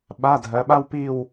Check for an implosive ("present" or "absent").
present